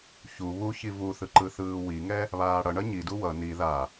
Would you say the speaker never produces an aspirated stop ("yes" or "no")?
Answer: yes